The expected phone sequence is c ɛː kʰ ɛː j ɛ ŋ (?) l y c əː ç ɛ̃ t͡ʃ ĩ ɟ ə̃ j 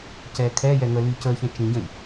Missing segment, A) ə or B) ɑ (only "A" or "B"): A